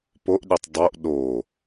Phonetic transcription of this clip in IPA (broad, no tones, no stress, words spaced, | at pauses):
poʔɗytˤ dˤoʔ ɗo